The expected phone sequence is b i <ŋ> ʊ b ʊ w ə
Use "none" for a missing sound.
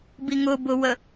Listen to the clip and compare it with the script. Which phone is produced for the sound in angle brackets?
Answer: ŋ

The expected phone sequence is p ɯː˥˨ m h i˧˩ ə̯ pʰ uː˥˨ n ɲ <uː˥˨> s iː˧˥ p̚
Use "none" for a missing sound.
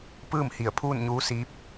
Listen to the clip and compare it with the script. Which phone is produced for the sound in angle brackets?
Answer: uː˧˥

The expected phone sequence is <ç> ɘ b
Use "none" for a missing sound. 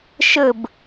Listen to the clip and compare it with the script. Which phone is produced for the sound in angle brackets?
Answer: ʃ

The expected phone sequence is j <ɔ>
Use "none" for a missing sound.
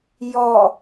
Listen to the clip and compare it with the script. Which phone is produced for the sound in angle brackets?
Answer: ɔ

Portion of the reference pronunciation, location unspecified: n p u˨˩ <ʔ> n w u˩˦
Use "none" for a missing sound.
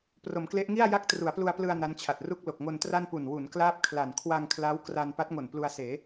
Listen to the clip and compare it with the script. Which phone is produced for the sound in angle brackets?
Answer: none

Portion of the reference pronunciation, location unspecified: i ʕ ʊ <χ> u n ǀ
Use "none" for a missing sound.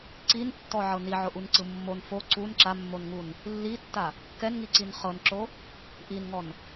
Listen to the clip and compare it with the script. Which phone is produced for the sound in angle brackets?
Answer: ʔ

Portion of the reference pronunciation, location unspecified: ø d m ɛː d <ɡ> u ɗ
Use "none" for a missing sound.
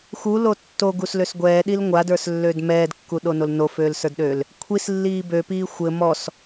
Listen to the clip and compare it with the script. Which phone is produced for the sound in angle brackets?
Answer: kː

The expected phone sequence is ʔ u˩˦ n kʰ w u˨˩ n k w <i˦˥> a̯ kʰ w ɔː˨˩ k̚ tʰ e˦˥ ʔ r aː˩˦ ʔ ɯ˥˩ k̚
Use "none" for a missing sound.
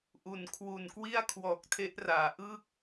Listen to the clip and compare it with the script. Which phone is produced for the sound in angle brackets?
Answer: i˥˩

